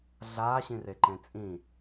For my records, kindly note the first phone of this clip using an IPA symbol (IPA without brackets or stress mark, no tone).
ɮ